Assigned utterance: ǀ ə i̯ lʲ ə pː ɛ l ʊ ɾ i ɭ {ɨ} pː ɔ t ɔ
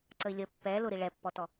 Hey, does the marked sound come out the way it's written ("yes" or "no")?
no